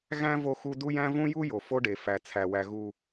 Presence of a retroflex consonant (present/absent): present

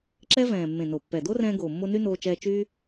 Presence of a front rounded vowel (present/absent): present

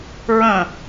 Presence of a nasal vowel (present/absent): present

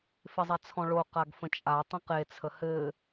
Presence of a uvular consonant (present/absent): present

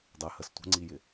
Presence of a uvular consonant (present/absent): absent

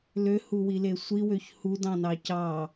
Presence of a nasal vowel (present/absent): present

